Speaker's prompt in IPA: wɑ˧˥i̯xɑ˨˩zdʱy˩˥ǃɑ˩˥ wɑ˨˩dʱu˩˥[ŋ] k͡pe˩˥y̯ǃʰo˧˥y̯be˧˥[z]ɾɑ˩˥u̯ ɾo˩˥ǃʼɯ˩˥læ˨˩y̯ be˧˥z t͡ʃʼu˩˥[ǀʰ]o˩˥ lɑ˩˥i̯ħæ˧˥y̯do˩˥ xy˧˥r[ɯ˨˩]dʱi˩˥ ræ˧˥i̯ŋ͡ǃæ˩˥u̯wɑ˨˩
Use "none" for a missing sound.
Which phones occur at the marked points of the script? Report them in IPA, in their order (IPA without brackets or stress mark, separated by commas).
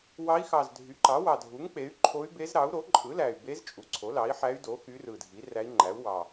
ŋ, z, ǀʰ, ɯ˨˩